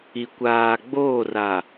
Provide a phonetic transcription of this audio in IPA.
i˨ kʷ aː˨ ɡ͡b oː˦˨ r a˨

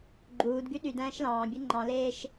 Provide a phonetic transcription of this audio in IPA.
ɡ͡ǃ uː d ɡ y ɗ y d æ̃ː ʃ l ɑ̃ː bʲ ɯ ŋ͡ǃ ɑ̃ l eː ʃ

